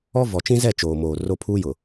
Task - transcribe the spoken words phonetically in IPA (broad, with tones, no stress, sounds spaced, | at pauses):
ɔ˦ v ɔ˨ t͡ʃ ĩ˦ z ɛ˦˨ t͡ʃ oː˨ m oː˨ r o˦ pʰ uː˦ j ʊ˨